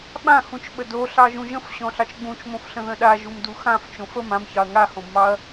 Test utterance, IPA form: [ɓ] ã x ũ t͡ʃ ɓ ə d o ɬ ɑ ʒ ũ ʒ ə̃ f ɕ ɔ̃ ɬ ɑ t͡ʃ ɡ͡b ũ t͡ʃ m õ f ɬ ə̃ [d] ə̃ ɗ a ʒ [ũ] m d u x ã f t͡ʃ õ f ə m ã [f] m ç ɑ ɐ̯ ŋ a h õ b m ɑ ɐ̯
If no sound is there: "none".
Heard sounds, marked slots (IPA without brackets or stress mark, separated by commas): ɓ, ð, u, none